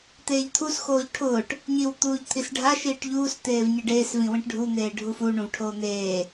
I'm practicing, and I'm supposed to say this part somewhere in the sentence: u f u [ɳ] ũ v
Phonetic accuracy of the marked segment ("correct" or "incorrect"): correct